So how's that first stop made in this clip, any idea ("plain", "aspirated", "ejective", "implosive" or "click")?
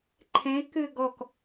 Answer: click